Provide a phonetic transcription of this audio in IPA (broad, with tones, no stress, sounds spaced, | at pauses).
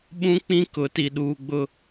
ɓ ũ˦ k͡p ĩ˦ k ʊ˨˦ t i˨ ɗ uː˨ ɡ͡b ʊ˨